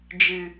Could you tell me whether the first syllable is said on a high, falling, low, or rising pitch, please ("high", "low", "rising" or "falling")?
low